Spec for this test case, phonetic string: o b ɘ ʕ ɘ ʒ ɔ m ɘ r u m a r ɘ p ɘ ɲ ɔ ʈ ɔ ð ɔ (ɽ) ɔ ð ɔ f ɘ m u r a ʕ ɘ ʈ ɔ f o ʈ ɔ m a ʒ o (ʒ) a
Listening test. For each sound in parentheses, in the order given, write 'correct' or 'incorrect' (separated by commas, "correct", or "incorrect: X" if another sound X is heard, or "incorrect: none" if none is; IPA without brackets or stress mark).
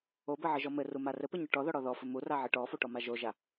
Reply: correct, correct